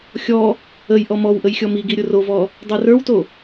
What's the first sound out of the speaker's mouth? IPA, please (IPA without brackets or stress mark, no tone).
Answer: xʲ